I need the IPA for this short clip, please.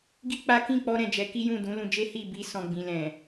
ɡi˦ k͡pa˦ kĩ˦˨k͡pɔ˧ɾɛ̃˨ d͡ʒɛ˨˦ ki˦jũ˦˨ dũ˨˦lũ˧d͡ʒe˦ hi˦˨bi˧ sɔ̃˨ɡ͡bĩ˨ lɛ̃˨

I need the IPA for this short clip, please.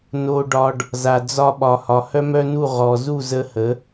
no˧ɖɒ˧ɖ | za˨d͡zɒ˧ɓɒ˨ hɒ˨hœ˦mœ˦nu˦˨ ʁɔ˨ zu˦˨zə˧hə˨˦

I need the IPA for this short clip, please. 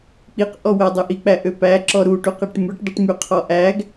k͡piqʔɔ wædˤøʔik͡pæ ʔøpæ ǁɔɾuʈuq eʈmʉʈdˤiʈ myqʰɔʔæɡ

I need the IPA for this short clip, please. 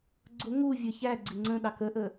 ɡ͡ǀʊ ŋuvʲə˞ çæ ɡ͡ǀɪŋ͡ǀə̃ɗɑ kəʔə

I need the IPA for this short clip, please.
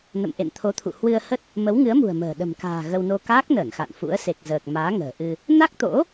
nə̰˧˨mʔḛ˧˨nt̪ʰo˨˦t̪ʰṵ˧˨ hwɨ˧ə̯hə˦˥t̚ | mə˨˦wŋɨ˨˦ə̯mṳ˨˩ə̯ mə̤ː˨˩ ɗə̤˨˩mka̤ː˨˩ ɣə˧wno˧ kaː˦˥k̚nəː˧˩nxa̰˧˨n fṵ˧˥ə̯se˨˩k̚zəː˨˩k̚ maː˨˦ŋə̤ː˨˩ʔɨ˧ | na˦˥k̚t̪o̰˧˥

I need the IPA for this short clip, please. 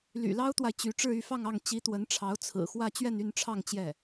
ly̰˨˩lɑ˥ʊ̯t̪wa˨ɪ̯ t͡ɕy˧˥ ʈ͡ʂɻ̩˥˧y˥˧fɑ˥˧ŋɑ˥˩ŋ t͡ɕi˧˥t̪wə˧˥nʈ͡ʂʰɑ˧˥ʊ̯ t͡sʰɹ̩˨˩xwä˥˧ t͡ɕɥɛ˥˧ny˥˧nʈ͡ʂʰɑ˥˧ŋ t͡ɕjɛ˥˩

